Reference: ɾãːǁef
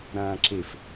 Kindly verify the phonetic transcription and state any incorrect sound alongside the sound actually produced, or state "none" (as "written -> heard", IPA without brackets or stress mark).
none